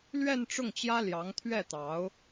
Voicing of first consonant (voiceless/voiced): voiced